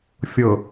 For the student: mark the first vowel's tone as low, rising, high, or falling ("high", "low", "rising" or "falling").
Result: low